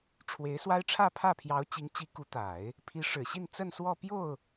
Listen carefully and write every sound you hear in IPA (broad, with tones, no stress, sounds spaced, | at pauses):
ʈ͡ʂʰ w e˧˥ ɪ̯ s w a˥ ɪ̯ ʈ͡ʂʰ ä˥˧ pʰ ä˥˩ pʰ j ɑ˧˥ ʊ̯ t͡ɕ i˧˥ ŋ t͡ɕ i˧˥ k u˧˥ t̪ a˨˩˦ ɪ̯ | pʰ i˧˥ ʂ ɻ̩˨˩ ɕ i˥˧ n t͡s ə˥˧ n s w ɔ˥˧ p j o˥˩ ʊ̯